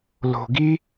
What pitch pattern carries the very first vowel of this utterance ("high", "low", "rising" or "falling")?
low